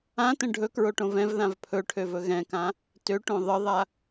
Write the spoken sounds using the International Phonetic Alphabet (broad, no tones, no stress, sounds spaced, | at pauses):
ã t ə̃ ɖʱ ɵ k ɹ o ʈ õ v ɛ̃ v ð ã v pʰ ɵ ʈʰ ø v ɵ ɣ ɛ̃ k ã | t ø ʈ õ ðˤ ə ðˤ a